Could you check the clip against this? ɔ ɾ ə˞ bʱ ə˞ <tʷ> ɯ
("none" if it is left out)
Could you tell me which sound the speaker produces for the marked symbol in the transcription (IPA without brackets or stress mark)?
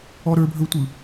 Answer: tʷ